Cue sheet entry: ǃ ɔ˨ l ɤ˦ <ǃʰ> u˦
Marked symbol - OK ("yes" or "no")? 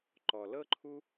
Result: yes